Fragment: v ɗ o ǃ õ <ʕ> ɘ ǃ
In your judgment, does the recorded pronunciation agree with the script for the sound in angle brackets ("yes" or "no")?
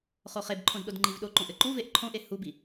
no